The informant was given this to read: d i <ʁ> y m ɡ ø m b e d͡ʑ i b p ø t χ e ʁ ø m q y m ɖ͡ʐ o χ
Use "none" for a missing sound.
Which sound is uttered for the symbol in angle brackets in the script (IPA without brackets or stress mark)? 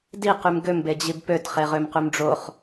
q